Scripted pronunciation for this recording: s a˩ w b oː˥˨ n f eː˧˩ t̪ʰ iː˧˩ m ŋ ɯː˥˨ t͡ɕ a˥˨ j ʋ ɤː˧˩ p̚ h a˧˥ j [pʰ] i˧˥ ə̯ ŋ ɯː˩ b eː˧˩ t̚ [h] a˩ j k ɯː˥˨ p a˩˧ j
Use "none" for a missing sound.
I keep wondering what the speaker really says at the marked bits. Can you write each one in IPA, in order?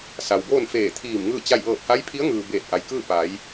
pʰ, ʔ

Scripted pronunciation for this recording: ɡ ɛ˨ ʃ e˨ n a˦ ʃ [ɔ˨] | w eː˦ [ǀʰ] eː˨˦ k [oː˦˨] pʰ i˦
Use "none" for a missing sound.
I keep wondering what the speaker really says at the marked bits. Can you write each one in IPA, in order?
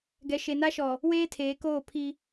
ɔ˨, tʰ, oː˦˨

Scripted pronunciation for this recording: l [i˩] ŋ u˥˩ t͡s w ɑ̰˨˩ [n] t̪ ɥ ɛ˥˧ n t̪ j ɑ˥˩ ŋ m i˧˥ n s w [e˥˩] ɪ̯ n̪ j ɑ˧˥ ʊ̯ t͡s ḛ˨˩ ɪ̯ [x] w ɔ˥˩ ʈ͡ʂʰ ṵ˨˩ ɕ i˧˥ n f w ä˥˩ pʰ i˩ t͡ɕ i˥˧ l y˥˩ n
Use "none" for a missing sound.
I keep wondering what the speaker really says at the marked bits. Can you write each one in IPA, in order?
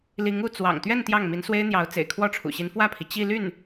i˧˥, ŋ, e˥, kʰ

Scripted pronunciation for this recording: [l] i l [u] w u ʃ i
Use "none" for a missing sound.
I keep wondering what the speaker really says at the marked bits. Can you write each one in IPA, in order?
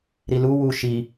ɾ, u

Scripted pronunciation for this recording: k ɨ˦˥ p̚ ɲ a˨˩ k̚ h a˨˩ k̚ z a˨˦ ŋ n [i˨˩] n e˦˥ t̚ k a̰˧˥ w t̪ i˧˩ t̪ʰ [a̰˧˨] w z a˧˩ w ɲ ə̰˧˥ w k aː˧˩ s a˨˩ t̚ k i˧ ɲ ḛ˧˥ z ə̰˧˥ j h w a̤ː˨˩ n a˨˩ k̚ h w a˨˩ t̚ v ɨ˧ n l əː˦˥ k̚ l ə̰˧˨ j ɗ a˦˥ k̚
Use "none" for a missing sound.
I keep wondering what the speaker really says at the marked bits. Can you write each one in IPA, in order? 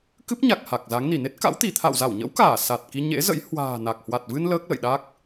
i˧˩, a̰˧˨

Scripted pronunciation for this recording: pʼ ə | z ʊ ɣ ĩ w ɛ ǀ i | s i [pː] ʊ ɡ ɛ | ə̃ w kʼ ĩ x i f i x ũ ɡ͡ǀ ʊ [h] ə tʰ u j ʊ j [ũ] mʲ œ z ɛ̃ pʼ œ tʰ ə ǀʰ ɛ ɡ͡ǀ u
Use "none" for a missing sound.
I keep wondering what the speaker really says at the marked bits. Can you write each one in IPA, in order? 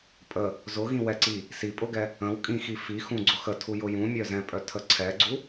pʼ, x, ũ

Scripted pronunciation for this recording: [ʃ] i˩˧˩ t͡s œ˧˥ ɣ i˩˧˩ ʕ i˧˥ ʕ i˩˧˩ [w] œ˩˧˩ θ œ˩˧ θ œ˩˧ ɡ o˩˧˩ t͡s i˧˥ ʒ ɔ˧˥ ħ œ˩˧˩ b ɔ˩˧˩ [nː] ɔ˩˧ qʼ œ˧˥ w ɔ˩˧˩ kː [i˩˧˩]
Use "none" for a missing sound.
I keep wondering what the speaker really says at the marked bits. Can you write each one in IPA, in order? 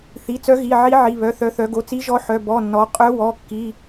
θ, β, nː, i˩˧˩

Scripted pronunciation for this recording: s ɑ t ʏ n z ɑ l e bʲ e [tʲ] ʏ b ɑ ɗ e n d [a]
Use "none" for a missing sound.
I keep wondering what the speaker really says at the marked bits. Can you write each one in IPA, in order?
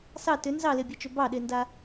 t͡ʃ, a

